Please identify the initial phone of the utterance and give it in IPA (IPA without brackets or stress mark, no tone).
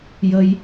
j